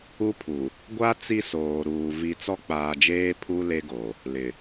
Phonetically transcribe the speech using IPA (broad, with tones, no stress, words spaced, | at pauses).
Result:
u˦pʰu˨ | ɡʷa˦ t͡si˦soː˨ɾuː˨ vi˨ t͡sɔ˦k͡paː˨d͡ʒeː˦ pʰu˦ le˦ɡo˨ | lɪ˨